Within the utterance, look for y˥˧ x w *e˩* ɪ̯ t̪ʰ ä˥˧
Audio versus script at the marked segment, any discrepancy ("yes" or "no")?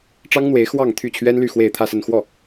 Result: yes